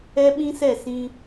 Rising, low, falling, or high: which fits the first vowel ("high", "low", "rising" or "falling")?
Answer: high